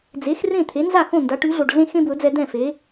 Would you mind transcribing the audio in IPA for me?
d͡z e˩˥ x r ẽ˥˩ t̪ʰ e˩˥ n z a˥˩ x õ˥˩ n d a˩˥ ʈ ʉ˩˥ ɮ o˩ ɖ ɮ ẽ˥ x ẽ˥ b w ɵ˩˥ d͡z ɛ˧ d̪ ɛ̃˥˩ f e˩˥

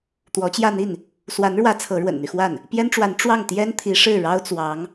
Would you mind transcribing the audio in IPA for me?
t̪ w ɔ˧˥ t͡ɕ j ä˥˧ n̪ i˥˩ n | s w a˧˥ n ɻ w ä˧˥ t͡sʰ ɤ˧˥ ɻ w ə̰˨˩ n n̪ y˦ x w a˥˩ n | p j ɛ˥ n ʈ͡ʂ w a˧˥ n ʈ͡ʂ w ɑ˥˩ ŋ t̪ j ɛ˥ n t̪ʰ i˧˥ ʂ ɻ̩˥˩ ɻ ɑ˥ ʊ̯ t͡s w ɑ˧˥ ŋ

